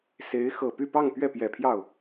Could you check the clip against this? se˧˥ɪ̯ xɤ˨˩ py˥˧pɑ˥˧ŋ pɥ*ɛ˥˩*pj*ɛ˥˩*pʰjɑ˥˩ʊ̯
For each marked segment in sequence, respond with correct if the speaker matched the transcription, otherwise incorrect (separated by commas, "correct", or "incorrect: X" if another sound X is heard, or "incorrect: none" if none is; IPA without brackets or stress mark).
correct, incorrect: ɛ˨˩